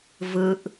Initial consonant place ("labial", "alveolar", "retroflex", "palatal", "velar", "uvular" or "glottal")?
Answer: labial